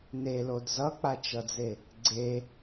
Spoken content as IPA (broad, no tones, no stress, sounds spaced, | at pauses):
n e l o d z ʌ k͡p a t͡ʃ ʌ d͡z e | ɡ͡ǀ e